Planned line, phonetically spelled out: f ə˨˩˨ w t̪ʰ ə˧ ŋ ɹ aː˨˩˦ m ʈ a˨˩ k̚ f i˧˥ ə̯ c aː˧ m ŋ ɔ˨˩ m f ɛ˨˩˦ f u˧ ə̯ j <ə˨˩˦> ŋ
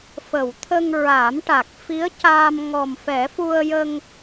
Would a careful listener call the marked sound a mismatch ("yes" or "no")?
yes